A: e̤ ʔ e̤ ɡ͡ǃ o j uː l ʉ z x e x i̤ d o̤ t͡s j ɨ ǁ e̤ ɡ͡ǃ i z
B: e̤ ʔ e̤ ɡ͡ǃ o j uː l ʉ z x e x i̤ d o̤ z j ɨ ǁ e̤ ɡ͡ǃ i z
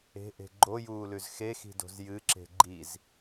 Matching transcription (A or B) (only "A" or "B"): B